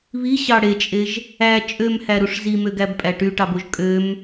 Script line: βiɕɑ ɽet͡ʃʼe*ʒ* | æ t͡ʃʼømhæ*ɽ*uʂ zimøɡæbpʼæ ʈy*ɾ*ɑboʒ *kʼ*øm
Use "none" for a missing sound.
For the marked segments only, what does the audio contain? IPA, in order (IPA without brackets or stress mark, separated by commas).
ʒ, ɾ, ʈ, kʼ